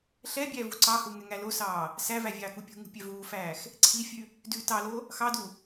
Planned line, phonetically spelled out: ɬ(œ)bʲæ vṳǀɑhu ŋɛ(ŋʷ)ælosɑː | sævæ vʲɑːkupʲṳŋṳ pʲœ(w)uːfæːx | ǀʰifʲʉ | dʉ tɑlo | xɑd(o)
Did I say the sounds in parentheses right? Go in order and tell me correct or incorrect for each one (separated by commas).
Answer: incorrect, incorrect, incorrect, incorrect